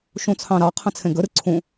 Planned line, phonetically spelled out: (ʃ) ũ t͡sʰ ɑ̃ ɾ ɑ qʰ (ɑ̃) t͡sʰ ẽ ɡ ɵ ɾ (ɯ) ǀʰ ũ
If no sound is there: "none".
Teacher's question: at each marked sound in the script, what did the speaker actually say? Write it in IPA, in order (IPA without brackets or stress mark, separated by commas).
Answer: ʃ, ə̃, ɯ